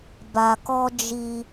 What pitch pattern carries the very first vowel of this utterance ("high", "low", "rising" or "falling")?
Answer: low